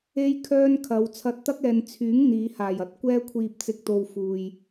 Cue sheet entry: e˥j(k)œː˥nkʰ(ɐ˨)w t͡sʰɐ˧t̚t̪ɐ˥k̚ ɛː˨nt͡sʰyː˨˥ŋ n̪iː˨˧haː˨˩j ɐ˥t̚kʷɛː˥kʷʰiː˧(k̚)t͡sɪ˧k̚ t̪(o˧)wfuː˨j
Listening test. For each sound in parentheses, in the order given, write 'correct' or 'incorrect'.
incorrect: kʰ, incorrect: ɐ˨˧, incorrect: p̚, correct

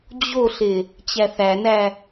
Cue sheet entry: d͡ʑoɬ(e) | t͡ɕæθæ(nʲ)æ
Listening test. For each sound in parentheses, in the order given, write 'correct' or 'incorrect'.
correct, incorrect: n

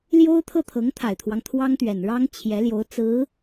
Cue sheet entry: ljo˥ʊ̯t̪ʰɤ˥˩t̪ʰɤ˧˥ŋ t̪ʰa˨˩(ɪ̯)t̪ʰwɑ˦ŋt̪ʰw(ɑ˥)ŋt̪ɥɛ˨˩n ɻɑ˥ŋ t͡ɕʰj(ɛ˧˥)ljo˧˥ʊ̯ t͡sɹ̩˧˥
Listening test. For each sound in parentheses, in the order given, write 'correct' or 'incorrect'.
correct, correct, correct

